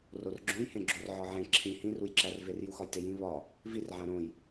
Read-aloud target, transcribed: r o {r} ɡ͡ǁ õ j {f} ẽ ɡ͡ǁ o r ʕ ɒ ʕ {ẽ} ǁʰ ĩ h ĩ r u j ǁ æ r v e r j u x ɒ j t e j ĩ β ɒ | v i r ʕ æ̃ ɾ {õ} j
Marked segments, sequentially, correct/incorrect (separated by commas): correct, incorrect, correct, correct